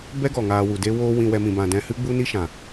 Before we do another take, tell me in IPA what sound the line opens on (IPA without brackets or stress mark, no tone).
b